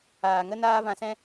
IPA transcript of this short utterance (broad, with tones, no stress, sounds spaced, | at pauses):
aː˨ ŋ ə˦ n aː˦ v ã˧ s ɛ̃˦